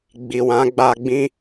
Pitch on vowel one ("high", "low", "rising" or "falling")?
low